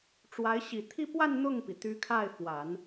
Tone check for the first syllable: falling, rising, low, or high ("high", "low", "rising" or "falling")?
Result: rising